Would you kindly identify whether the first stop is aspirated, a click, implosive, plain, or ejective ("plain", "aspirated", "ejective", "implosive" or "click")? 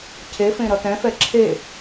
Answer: aspirated